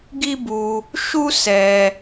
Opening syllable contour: high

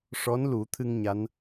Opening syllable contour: rising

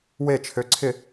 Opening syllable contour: falling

